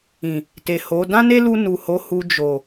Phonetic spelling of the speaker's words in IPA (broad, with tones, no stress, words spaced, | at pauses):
ĩ˨ | te˨ ho˨˦ dã˦ne˦lu˧ nu˨ho˨˦hu˧ d͡ʒo˨